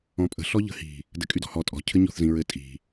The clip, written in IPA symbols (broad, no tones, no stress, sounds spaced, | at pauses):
ɔ̃ pʼ ə̤ ɬ ɔ ʎ ə̤ h i̤ | d ɘ kʼ y d ɔ̤ h ɔ tʼ ɔ̤ cʰ ɘ ɲ ɔ̤ θ z ĩ ɹ ɘ tʼ i̤